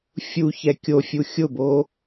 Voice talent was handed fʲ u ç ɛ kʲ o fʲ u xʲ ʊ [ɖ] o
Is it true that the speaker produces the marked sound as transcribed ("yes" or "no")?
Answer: no